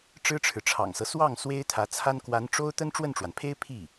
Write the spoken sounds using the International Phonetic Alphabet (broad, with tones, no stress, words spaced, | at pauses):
ʈ͡ʂɻ̩˥ʈ͡ʂʰɻ̩˨ʈ͡ʂʰɑ̰˨˩ŋsɤ˦ swɑ˥˩ŋ swe˥ɪ̯t̪ʰä˧˥t͡sʰa˥n kwa˧˥n ʈ͡ʂo˥ʊ̯ t̪ə˥nʈ͡ʂwə˥˩nʈ͡ʂwa˩npʰe˥ɪ̯ pʰi˥˩